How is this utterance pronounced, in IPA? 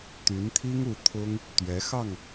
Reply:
t̪ y˧˥ n t̪ʰ i˥ ŋ u˧˥ t̪ʰ ʊ˥ ŋ | t̪ ɥ ɛ˧˥ x ɑ˥˩ ŋ

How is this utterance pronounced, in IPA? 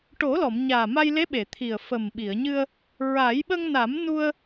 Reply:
ʈ o˨˩˦ l ɔ˨˩˨ m ɲ aː˨˩ m a˧ j l e˧˥ ɓ e˨˩˨ t̪ʰ i˨˩ ə̯ f ə˨˩ m ɓ i˨˩˨ ə̯ ɲ ɨ˧ ə̯ | ɹ a˨˩˦ j ɓ ə˧ ŋ n a˨˩˦ m n u˧ ə̯

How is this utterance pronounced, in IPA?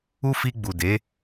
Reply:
u˦ f i˧ ɡ͡b u˨ d e˨˦

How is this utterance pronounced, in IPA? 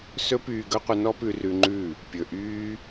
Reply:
s ɵ˧ p yː˨ ɡ ɵ˦ qʷ ə˧ n ɔ˦ p ʉ˧ r ʉ˧ ŋ͡ǃ ʉ˦˨ | pʲ ɵ˨ ʔ yː˦

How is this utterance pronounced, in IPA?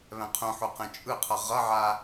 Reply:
β ɛ̃ qʰ ũ ħ u q ɛ̃ t͡ʃʼ ɯ qʰ ʌ ʁ ʌ ʕ a

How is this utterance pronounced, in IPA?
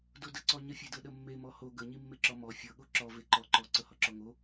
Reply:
d o d ə ǀ ɔ ɲ ə fʲ e d ɤ ɗ ə mː e m ɔ h o ɡ ə ɲ i mː e ǁ ɔ m ɔ fʲ ɤ ɠ o ǁ ɔ v e ǃ ɔ ǃ ɔ ǀ ɤ h ɔ ǁ ɔ ŋ o

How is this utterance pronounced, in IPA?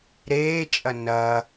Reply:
ɾ eː t͡ʃʼ ɐ n ɐ

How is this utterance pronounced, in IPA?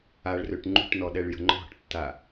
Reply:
a ɭ r ø ʈ ŋ͡ǃ ṳ ʈ n ɔ ɗ ɛ ɭ j ə̤ ŋ͡ǃ ɔ̤ ʈ tː a

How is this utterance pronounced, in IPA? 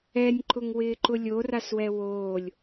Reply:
ɛ nʲ ǃ ʊ ŋ w ɪː ǃ ʊ lʲ o r a s w ɛ w oː lʲ

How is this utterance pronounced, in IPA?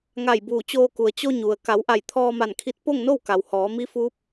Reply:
ŋ a˧˩ j b uː˧˩ t͡ɕ oː˧ k u˩ ə̯ t͡ɕ o˧ ɲ u˩ ə̯ k a˩˧ w ʔ a˧˩ j t̪ʰ ɔː˧ m a˧˩ n kʰ i˧ t̚ p o˥˨ ŋ n o˥˨ w k a˩ w h ɔː˩˧ m i˧˥ f uː˧˥ p̚

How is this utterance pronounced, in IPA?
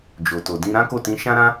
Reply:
d͡ʒ o˨ t o˨ d ĩ˧ ɾ ã˦ k o˦˨ t ĩ˧ ʃ ã˦ ɾ ã˦

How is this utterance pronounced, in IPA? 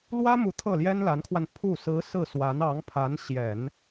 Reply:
l w ä˥ m u˧˥ t̪ʰ ɤ˥˩ l j ɛ˥ n l a˧˥ n kʰ w a˧ n pʰ u˥˩ s ɹ̩˧˥ s ɹ̩˥˩ s w a˧˥ n ɑ˧˥ ŋ pʰ a˧˥ n ɕ j ɛ˨˩˦ n

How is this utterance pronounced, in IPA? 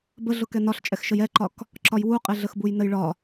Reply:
b ə ɮ ʊ k ɛ n ɒ ɬ t͡ʃʼ ɛ x ʃ ə j ɛ ǃ ɒ k | ǁ ɒ j w u qʼ e ɮ ə x b u j n ə j ɭ ɒ

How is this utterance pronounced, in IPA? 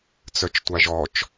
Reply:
t͡s œ t͡ʃ tʷ a ʒ ɔ t͡ʃ

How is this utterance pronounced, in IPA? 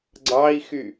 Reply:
ɡ͡ǀ ɑ i̯ x y

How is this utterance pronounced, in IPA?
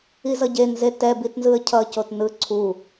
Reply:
i z ʌ ɟ e n z e t ɛ b i t n z ɯ ə̯ cʰ ʌ c o t n ɯ ǀʰ u

